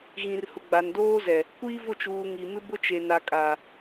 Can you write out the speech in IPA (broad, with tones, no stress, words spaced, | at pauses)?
ɣĩ˨rhʊ˨ ɡ͡ba˨ndoː˦zɛ˨ | kʷiː˦vʊ˦˨t͡ʃuː˨ ŋi˨mɪ˦bʊ˦t͡ʃe˨ na˨kʼa˨